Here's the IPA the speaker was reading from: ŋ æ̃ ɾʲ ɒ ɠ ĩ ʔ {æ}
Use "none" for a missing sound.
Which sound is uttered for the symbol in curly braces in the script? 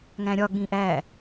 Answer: æ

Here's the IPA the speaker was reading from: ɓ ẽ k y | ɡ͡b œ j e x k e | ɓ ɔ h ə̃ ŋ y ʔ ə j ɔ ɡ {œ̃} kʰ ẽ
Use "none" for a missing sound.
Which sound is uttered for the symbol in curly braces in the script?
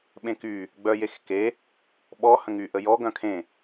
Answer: œ̃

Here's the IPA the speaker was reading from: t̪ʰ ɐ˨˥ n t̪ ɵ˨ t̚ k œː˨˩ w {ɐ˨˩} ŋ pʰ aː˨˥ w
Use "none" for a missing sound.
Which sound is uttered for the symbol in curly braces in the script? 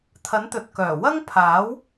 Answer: ɐ˥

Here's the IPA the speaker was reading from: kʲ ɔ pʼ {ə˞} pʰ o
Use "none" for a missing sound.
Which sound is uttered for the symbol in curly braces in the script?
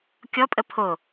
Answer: ə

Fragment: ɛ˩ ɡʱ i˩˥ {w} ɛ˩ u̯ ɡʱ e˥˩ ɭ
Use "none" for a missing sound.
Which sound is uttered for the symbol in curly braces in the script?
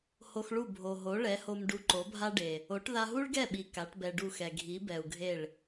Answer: b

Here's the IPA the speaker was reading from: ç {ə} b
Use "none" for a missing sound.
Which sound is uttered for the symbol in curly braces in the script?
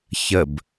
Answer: ə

